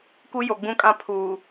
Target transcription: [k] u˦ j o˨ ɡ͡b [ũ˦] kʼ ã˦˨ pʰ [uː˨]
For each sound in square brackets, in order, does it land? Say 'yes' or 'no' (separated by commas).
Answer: yes, yes, yes